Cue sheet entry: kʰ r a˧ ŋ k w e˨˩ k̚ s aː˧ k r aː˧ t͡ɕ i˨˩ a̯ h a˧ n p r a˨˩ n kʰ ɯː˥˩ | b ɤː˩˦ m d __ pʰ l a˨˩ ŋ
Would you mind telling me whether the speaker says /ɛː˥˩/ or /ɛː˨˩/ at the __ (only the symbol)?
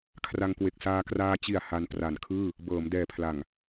ɛː˨˩